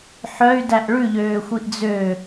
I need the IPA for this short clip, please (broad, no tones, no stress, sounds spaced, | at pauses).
ħ œ y̯ d æ ʔ ɭ ʉ ʎ øː xʷ i ʔ d͡z ø